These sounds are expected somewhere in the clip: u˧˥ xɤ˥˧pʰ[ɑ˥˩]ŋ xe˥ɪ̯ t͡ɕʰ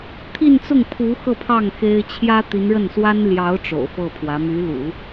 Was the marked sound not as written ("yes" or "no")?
no